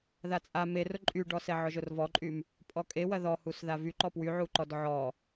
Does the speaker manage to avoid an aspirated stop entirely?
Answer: yes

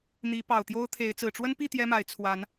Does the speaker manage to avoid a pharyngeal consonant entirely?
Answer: yes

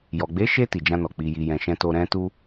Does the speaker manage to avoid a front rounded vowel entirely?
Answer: yes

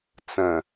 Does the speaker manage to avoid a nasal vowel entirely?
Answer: no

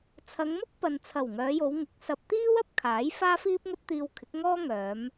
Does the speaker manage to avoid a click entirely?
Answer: yes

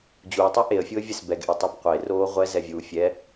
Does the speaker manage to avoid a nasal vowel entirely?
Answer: yes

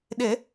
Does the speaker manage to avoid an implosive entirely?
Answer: no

